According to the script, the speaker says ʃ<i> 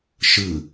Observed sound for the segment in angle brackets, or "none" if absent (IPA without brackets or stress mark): ɨ